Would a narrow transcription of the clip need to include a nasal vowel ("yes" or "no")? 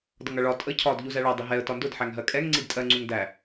no